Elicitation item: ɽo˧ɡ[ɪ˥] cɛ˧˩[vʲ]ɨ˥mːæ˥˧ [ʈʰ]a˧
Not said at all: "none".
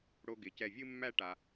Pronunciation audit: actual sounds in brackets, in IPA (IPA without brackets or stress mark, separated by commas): ɪ˩˧, vʲ, ʈ